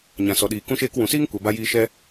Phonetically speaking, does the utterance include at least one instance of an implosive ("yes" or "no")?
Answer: yes